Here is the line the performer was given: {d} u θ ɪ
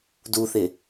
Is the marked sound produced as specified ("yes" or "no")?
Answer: yes